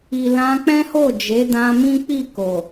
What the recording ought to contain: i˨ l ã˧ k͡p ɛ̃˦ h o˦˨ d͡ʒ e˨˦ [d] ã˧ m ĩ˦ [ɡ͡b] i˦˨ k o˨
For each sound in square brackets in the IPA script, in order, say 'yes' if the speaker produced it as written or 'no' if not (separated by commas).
yes, no